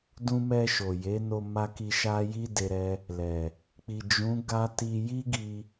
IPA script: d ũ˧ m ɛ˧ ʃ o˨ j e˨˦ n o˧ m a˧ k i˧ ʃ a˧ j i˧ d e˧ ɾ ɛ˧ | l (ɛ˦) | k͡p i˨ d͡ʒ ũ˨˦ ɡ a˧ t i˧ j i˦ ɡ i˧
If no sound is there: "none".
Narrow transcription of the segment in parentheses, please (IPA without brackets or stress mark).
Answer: ɛ˨